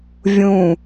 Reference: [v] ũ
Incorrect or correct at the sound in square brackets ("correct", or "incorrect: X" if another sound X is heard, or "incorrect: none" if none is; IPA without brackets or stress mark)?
incorrect: vʲ